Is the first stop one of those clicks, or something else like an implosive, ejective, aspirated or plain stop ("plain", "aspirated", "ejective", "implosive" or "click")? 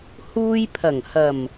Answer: aspirated